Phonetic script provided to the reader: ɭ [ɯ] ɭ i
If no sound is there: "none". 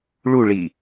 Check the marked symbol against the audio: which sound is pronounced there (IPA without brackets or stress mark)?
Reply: u